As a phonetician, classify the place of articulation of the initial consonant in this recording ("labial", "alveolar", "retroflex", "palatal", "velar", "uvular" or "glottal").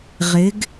uvular